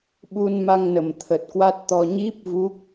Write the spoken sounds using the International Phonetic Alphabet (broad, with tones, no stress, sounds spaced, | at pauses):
ɓ u˧ n m a˧ ŋ n ə˨˩ m t̪ʰ ə˨˩ t̚ k w a˦˥ t̚ t̪ ɔ˧ ɲ i˦˥ p̚ v u˦˥ k̚